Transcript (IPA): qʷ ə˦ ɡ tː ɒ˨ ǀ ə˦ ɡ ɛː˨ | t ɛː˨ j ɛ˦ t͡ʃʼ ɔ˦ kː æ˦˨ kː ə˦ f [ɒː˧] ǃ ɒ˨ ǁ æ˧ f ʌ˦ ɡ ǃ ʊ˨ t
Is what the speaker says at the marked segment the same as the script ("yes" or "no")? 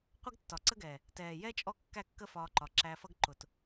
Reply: yes